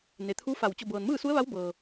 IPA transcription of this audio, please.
n e˩ t̪ʰ u˧˥ f a˧˩ w t͡ɕ o˧˩ b ɤː˩ n m ɯː˥˨ s u˧˥ ə̯ ʋ a˧˥ w b ɤː˩

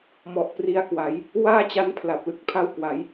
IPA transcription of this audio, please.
m ɔ˨˩ ʔ p r i˧ a̯ k w a˩˦ j | w aː˥˩ t͡ɕ a˦˥ n pʰ l a˨˩ p̚ l ɯ˦˥ k̚ pʰ a˥˩ w k w a˩˦ j

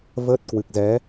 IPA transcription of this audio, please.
v əː˦˥ t̚ k w ɨ˨˩ k̚ z ɛ˨˦

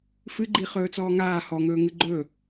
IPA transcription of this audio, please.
f ɨ ɡ͡ǃ i χ ɵː t͡s ɔː ŋ aː h ɔ ŋ ɵː ŋ ɨ ɡ͡ǃ ɵ

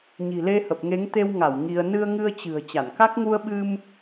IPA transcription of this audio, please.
ɲ i̤˨˩ l e˧ h ə˨˩ p̚ ŋ e˨˦ ŋ t̪ e˧ w ŋ a˧˩ w ŋ i˧ ə̯ n ɨ˧ ə̯ ŋ ɨ˧ ə̯ t͡ɕ ɨ̤˨˩ ə̯ t͡ɕ a˧˩ n k a˦˥ k̚ ŋ u˧ ə̯ ɓ ɨ˧ m

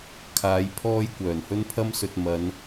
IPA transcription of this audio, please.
kʰ aː˨˧ j pʰ ɔː˥ j kʷ œː˨˩ n h ɵ˥ n pʰ ɐ˥ m s ɵ˧ t̚ m ɐ˨˧ n

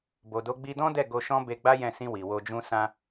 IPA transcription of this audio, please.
b o˨ d o˨˦ ɡ͡b i˧ d ɔ̃˦ d ɛ˦˨ ɡ o˧ ʃ ɔ̃˦ b e˧ ɡ͡b a˦ j ɛ̃˦˨ s ĩ˧ w i˨ w o˧ d͡ʒ ũ˦ s ã˧

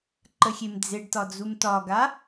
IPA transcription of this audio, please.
ǃ ə xʲ e m d͡z e ɖ t ɒ d͡z u m t ɒ ɡ a

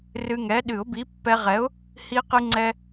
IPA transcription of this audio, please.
r ɨ˧ ŋ ɛ˨˥ ɗ ɨ˨˩˦ ʊ̯ b i˨˥ pː ɛ˧ ʁ ɛ˨˥ ʊ̯ | h i˧ q ɨ˧ ŋ͡ǀ ɛ˧

